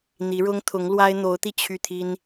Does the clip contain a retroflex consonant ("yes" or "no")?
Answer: yes